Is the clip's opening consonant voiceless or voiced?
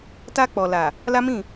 voiceless